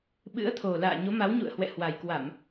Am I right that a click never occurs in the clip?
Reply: yes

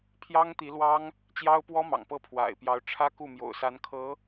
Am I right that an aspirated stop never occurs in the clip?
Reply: no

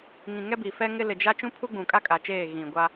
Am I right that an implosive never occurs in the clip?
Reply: yes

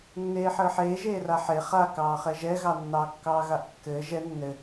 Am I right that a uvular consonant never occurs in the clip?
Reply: no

